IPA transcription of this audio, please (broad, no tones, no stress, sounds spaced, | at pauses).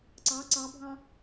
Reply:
ǀ ɑ ǀ ɑ bʱ ɑ̃